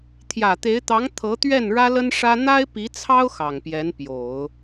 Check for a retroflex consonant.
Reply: present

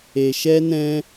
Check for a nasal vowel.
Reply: present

